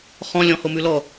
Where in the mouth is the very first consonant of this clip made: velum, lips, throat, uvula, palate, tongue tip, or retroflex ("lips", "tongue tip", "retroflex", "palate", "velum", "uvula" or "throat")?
uvula